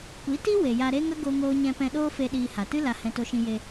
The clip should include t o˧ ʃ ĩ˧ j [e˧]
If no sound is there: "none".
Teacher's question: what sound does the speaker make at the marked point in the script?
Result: e˧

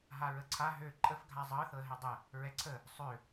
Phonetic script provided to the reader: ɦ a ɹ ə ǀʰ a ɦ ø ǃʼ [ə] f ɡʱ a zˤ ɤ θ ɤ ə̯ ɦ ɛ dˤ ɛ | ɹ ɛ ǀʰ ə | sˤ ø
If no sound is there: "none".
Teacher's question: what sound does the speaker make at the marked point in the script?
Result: ə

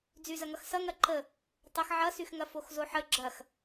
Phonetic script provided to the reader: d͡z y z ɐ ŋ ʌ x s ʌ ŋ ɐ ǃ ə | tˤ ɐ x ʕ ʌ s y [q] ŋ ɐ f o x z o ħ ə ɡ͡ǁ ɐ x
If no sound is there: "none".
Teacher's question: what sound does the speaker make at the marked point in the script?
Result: x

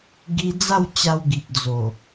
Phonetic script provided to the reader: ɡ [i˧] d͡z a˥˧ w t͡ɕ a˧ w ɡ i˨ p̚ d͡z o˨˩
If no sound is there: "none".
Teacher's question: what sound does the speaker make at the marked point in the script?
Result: i˧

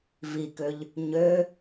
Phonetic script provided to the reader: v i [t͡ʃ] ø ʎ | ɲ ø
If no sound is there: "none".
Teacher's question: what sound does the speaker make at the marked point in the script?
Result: k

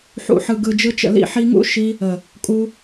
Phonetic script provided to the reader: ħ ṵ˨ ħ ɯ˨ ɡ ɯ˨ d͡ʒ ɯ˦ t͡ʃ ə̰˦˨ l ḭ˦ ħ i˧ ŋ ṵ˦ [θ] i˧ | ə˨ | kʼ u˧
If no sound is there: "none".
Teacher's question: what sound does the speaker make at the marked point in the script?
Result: ʃ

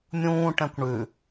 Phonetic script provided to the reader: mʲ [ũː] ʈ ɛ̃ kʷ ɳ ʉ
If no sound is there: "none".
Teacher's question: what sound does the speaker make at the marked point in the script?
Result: ũː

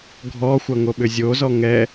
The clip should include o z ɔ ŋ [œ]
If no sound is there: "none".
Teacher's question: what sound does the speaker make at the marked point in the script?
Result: ɛ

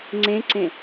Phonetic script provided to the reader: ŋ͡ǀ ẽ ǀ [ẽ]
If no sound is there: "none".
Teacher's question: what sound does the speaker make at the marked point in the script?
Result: ẽ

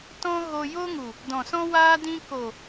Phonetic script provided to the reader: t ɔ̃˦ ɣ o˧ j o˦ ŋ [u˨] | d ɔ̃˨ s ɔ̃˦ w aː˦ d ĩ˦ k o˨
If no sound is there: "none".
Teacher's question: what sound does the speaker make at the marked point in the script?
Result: u˨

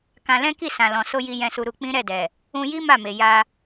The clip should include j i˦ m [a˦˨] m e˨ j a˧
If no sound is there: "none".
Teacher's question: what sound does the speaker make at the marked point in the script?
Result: a˦˨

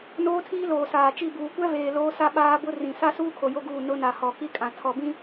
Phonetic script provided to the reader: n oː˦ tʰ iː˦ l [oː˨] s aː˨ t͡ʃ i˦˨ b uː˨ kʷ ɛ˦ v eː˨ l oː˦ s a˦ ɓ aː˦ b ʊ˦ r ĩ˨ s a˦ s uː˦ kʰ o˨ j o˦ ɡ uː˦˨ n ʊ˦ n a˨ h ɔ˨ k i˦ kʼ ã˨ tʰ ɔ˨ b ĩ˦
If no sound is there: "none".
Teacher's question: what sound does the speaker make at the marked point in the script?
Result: oː˨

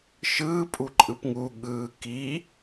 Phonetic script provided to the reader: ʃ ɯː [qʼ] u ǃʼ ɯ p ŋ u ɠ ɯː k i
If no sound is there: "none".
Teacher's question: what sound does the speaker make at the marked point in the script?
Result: pʼ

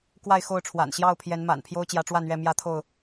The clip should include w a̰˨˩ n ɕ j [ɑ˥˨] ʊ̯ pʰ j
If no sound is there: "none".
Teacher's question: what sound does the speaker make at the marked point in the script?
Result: ɑ˥˨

